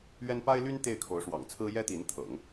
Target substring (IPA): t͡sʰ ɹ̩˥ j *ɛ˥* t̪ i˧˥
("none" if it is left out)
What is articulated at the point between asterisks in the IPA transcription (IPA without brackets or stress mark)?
ɛ˥